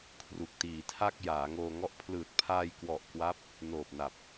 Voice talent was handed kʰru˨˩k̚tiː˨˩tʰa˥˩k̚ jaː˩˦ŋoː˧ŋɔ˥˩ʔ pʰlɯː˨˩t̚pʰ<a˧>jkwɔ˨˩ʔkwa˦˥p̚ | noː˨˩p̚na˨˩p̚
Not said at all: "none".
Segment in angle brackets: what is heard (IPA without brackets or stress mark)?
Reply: aː˧